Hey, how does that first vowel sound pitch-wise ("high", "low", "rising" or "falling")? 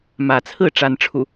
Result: rising